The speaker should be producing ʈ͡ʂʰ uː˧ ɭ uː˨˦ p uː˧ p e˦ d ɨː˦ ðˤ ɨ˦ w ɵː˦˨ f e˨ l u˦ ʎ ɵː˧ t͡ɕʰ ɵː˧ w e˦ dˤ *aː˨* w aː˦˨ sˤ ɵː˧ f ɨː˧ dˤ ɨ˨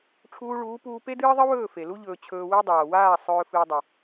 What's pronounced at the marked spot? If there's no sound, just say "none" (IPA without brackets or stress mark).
aː˨